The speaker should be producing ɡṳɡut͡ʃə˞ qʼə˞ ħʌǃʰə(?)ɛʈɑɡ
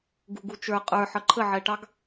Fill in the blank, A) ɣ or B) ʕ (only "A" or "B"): B